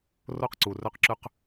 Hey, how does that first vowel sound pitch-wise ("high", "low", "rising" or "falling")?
high